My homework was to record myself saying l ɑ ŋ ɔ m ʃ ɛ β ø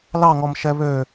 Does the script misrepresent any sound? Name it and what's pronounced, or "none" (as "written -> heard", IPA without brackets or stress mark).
none